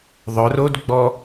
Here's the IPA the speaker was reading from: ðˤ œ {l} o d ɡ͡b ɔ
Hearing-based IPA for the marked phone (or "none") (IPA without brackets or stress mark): r